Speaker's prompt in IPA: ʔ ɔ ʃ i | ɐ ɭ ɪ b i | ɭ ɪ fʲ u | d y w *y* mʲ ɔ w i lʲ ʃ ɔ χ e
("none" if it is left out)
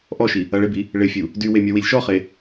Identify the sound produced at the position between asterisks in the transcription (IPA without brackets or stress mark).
e